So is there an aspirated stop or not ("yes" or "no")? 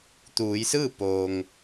no